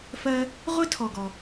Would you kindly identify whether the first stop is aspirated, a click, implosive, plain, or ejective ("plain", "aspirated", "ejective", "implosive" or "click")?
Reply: aspirated